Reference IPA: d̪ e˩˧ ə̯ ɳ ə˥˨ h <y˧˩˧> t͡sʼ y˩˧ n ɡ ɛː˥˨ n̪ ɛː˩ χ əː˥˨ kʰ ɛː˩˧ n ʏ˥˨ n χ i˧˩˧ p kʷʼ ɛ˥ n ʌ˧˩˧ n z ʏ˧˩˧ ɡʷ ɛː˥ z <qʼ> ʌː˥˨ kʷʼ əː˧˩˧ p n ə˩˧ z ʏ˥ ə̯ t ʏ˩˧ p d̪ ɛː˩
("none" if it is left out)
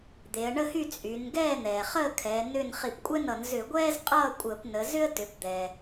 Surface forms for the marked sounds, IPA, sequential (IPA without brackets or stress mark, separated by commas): y˥˨, qʼ